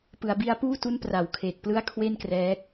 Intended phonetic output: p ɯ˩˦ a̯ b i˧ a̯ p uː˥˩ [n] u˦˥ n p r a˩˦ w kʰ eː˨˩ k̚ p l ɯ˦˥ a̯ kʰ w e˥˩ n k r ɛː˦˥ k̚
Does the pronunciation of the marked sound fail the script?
yes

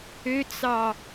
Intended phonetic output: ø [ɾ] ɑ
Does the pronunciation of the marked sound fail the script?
yes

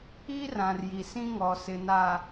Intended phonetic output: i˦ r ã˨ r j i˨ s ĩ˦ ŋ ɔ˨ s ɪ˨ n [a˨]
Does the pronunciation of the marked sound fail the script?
no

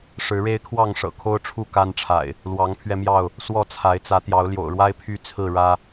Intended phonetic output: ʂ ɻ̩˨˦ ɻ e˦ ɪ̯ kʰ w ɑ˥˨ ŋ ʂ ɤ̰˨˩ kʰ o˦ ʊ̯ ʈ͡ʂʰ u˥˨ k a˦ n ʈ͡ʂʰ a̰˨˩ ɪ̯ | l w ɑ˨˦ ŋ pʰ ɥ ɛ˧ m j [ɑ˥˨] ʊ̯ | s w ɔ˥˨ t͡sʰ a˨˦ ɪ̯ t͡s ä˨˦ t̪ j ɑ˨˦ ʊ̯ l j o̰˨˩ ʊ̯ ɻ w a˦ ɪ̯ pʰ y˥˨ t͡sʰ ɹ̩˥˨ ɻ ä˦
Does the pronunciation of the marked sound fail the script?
no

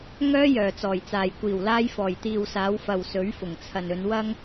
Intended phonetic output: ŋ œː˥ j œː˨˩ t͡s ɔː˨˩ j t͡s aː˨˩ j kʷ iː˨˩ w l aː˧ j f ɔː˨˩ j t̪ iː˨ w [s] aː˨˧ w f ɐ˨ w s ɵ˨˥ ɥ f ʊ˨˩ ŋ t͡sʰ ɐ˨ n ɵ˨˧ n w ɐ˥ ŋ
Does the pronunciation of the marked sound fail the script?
no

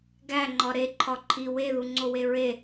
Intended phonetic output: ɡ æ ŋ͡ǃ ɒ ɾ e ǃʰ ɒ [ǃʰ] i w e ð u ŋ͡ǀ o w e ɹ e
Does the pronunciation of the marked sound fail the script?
no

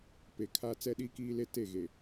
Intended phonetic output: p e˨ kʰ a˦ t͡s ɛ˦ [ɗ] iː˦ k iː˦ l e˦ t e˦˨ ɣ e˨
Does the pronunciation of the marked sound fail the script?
no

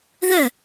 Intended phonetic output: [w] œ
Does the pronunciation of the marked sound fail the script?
yes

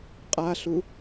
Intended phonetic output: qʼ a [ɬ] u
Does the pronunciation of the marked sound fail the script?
no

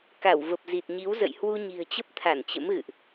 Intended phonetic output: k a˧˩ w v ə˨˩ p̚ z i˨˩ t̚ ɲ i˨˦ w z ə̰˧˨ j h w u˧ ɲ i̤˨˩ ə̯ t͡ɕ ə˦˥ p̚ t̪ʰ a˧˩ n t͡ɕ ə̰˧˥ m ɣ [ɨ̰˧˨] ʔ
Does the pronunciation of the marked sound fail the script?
no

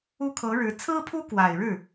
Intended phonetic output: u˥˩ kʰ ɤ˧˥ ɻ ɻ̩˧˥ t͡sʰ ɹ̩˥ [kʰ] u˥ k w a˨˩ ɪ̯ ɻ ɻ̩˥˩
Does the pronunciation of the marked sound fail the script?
yes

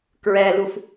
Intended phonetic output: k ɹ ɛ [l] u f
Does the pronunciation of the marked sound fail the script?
no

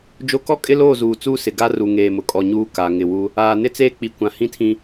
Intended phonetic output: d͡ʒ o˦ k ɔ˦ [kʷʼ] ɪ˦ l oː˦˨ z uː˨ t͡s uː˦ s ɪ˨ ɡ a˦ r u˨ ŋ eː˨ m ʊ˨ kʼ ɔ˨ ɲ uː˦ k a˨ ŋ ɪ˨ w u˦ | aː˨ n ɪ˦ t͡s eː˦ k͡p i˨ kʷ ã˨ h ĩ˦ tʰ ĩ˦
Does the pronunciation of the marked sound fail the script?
yes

